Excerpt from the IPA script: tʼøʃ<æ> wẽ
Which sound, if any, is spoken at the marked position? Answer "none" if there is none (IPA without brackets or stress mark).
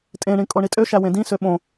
æ